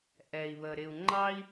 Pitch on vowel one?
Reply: low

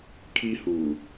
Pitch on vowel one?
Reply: high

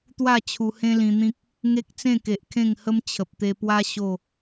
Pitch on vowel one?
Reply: falling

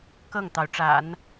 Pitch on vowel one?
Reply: falling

